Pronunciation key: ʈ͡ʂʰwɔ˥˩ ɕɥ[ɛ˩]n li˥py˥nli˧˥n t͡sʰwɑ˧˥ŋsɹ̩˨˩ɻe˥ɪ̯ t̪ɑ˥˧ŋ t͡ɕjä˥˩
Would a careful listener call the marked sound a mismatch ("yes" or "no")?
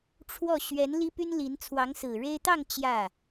yes